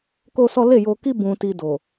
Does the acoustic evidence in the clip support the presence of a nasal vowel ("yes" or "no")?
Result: yes